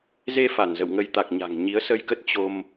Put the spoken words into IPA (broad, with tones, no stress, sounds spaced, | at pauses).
z e˧ f a˧˩ n z ə̰˧˨ w ŋ ə˧ j t̪ a˨˩ k̚ ɲ a̤˨˩ ŋ ɲ i˨˦ ə̯ s ə˧ j k ə˦˥ t̚ t͡ɕ o˧ m